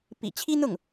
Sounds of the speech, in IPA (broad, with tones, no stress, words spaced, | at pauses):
pḭ˨˩t͡ɕʰi˥n̪ʊ˥˩ŋ